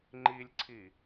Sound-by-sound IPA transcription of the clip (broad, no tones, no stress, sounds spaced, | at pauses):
ŋ͡ǃ i lʲ ǀʰ i